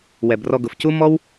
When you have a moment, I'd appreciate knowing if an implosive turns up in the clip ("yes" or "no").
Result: no